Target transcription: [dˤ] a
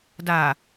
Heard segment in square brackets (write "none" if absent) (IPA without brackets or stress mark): d